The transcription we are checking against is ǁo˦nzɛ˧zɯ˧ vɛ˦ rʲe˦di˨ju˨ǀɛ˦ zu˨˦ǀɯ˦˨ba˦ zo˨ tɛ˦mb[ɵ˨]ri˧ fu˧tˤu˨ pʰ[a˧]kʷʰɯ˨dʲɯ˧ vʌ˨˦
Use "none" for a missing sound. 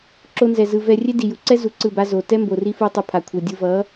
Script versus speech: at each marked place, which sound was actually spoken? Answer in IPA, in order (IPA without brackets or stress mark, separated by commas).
o˨, a˨